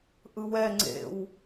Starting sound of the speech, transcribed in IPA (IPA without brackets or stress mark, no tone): ʔ